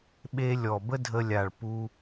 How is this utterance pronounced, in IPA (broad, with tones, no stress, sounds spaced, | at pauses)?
ɓ e˧ lʲ ɔ˨ b ə˦ dʱ ə˧ lʲ a˨ ɭ p u˧